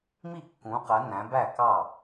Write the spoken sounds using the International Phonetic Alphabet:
m i˥˩ kː ũ˨˦ q ɜ˨˦ n æ̃˨˦ b æ˥˩ k ɑ˥˩

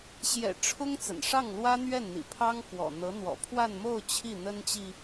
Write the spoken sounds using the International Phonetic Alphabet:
ɕ j ɛ̰˨˩ ʈ͡ʂʰ ʊ˥ ŋ t͡s ə̰˨˩ n ʂ ɑ˥˩ ŋ l w ä˥ n̪ ɥ ɛ˥˩ n n̪ ḭ˨˩ pʰ ɑ˥ ŋ k w ɔ̰˨˩ n̪ ɤ˧˥ n̪ w ɔ̰˨˩ pʰ w a˥˧ n m o˥˧ ʊ̯ t͡ɕʰ i˥˩ n̪ ə˥ n t͡ɕ i˨

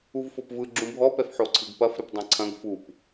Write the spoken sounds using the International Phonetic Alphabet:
u v f o p v ɯ ɡ͡ǁ ũ bʱ ɔ p ɛ f ħ o ǀʰ ɨ ɡ p ɐ f ɾ ɨ p dˤ ɐ̃ ǀʰ ɐ̃ ɡ f u p

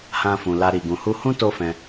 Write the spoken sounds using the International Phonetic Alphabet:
h ã˧ f ũ˨ l a˧ ɾ i˨ ɡ ũ˨ h u˧ h ũ˦ t o˦ f ɛ̃˧

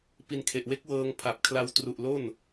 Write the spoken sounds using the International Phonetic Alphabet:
p i˧ n kʰ e˨˩ ʔ w e˦˥ k̚ w ɤː˧ ŋ pʰ a˨˩ p̚ kʰ l a˧ w t r u˨˩ ʔ l o˥˩ n

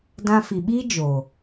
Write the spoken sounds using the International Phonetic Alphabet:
d ã˧ f i˨ ɓ iː˦ d͡ʒ o˨

